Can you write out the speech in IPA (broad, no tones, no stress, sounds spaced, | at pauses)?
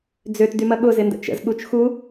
d͡z ø t d y m ɐ ɠ ʊ z ɪ n d ə̰ t͡ʃ ə̰ z ɠ u t͡ʃ x u